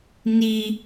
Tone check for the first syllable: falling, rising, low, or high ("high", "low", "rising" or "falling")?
high